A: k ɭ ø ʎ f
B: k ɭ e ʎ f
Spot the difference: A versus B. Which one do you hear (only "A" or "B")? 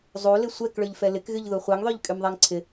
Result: A